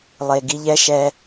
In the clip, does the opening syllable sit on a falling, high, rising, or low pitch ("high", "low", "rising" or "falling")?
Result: low